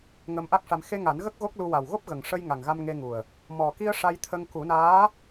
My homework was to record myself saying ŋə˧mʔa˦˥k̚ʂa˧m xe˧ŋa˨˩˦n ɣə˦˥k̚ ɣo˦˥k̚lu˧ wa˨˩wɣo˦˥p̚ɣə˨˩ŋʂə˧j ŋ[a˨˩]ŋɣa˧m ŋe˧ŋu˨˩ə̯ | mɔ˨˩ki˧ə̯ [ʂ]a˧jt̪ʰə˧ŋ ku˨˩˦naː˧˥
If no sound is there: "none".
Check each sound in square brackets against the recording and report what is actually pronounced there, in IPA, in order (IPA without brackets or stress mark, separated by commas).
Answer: a˨˩, ʂ